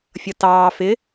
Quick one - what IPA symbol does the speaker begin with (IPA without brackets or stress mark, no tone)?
fʲ